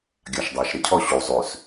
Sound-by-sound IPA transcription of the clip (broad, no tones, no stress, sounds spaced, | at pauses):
ɡʲ a ʃ dˤ ɘː ʃ ɾ ɪ cʰ ɔ ɕ u zˤ ʉ s